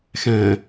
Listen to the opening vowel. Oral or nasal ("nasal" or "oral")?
nasal